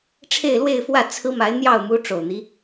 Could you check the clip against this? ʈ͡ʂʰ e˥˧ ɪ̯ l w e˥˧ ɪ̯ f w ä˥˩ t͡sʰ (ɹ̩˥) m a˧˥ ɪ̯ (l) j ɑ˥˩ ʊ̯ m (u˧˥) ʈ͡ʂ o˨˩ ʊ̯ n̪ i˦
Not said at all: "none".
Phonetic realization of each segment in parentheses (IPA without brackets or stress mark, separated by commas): ɹ̩˥, n̪, u˧˥